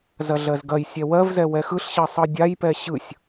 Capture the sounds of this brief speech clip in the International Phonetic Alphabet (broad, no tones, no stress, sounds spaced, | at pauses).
z ɐ ɮ ɜ z ɡ ɐ j sʲ ɛ w ɜ v z ɛ w ɛ x ɯ ɬ ɕ ɜ sˤ ɯ dʲ a j p ɛ ɕ ɯ sʲ